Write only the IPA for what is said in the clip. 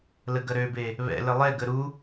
l ə ɡ ɐ ɾ ø b e | β ɛ̰ l ə lˠ ɛ ɡ ə ɾ u

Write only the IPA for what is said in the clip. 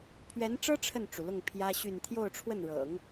pʰ ɥ ɛ˧˥ n ʈ͡ʂ ɤ˥ ʈ͡ʂʰ ə˥˩ n ʈ͡ʂ u˩ l ʊ˥˩ ŋ pʰ j ä˥ ɕ y˥˧ n t̪ʰ j o˥˧ ʊ̯ ʈ͡ʂʰ w ə˥˩ n ɻ ɤ̰˨˩˦ ŋ

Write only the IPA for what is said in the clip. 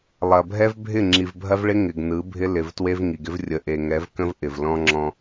lˠ ɐ˨ bʱ ɛ˦ v bʱ ɪ˦˨ ŋ͡ǁ i˨ v bʱ ɐ˦ v ɭ ɪ˦ ŋ ɪ˨ ɡ n ɯ˨˦ bʱ ɪ˦ l ɪ˨ v t w e˦ v ŋ i˨ ɡ ɪ˦ v rʲ ə˨ ʔ e˨ ŋ ɛ˨˦ v k ə̃˦ v ʔ ɪ˨ v l ɔ̃˦ ŋ͡ǁ ɔ̃˦

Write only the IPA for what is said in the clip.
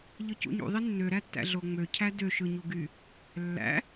ʎ ɯ c ṵ ɲ ṵ ðˤ i nː ø ɾ æ tː æ̰ ɮ o ŋ͡m ø cʰ æ d ø ʃ ɯ ɲ u ɡ y | lː æ̰

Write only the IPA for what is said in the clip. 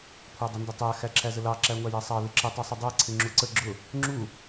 kʷʰ ɑ dˤ ə n d ʊ tˤ æ x æ ǁʰ æ z ə l ɑ ǁ æ ŋʷ æ j æ sˤ ɑ l ɪ ǁ ə tˤ u sˤ ʊ dˤ æ ǀʰ ɪ ŋ͡ǁ u ǀ ə ɡ͡ǁ ʊ | ŋ͡ǁ u

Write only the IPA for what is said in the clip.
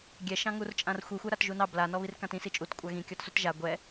ɡʲ ɛ ʃ ɑ̃ ŋ u r t͡ʃʼ ã r xʷ i xʷ ɛ ɾ a t ʒ u n ɑ b l a n ɔ β i r k ã t ĩ s i t͡ʃʼ u t kʷʼ a ɣ ĩ kʲ ɔ t s u t ʒ a ɡʷ ɛ

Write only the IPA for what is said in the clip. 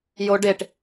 j o ɖ e ʈ

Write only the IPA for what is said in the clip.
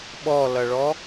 ɓ ɔ l ʌ ɭ ɔ

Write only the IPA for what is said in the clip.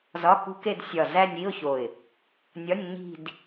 z ɒ˧˥˧ k ṳ˦˥ k e˥˧ d sʲ ɒ˧˩ z æ˥˧ nʲ i˧˥˧ ʊ̯ ç o˧˩ ɪ̯ | nʲ ɒ˧˥˧ nʲ ɲ i̤˥˧ d

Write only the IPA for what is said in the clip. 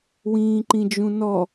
w ĩː ǃ ĩ d͡ʒ ũ n ɔ

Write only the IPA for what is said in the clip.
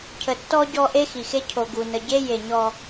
cʰ ə˨ tː ɔ˦ ɟ ɔ˦ ʔ e˦ x i˨ x e˦ cʰ o˨ ɡ u˨ n ə˨ ɟ e˦ j e˨ ɲ ɔ˦

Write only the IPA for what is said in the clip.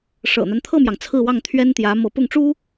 ʂ ɤ̰˨˩ n̪ a˦ n t̪ʰ ɤ˥˩ m j ɑ˩ ŋ t͡sʰ ɹ̩˥˧ w ɑ˥˩ ŋ t̪ʰ ɥ ɛ˥ n t̪ j ä˧˥ m ɤ˧˥ p ʊ˥˩ ŋ ʈ͡ʂ u˥

